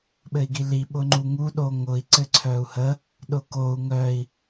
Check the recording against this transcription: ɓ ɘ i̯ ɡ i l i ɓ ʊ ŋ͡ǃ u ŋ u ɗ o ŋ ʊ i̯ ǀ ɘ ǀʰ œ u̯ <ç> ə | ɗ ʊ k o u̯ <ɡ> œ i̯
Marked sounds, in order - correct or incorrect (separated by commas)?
incorrect, incorrect